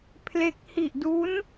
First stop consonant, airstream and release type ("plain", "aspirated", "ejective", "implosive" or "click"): aspirated